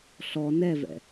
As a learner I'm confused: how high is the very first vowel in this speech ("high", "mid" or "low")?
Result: mid